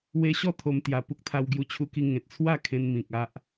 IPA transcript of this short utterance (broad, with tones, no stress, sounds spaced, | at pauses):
w e˧ ɕ ɔ˥˧ t̪ʰ o˧ m t̪ j a˨˩ p u˦ k̚ t̪ʰ a˧ w ɡ j u˧ t͡ɕʰ u˧ k i˧ ŋ ẽ˨ t̚ t͡sʰ w a˥˧ kʰ ẽ˧ n m ĩ˨ k̚ a˦ ʔ